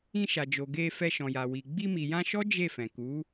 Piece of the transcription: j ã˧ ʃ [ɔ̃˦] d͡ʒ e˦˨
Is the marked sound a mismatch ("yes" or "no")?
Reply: yes